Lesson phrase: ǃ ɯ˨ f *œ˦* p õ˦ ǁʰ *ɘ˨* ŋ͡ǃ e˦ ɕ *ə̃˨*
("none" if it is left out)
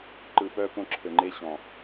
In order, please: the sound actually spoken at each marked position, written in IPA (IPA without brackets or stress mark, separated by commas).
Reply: œ˦, ɘ˨, ɔ̃˨